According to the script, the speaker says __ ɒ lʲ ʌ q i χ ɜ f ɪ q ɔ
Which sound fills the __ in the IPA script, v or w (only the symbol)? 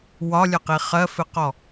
w